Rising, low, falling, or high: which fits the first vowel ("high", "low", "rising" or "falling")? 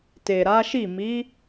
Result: low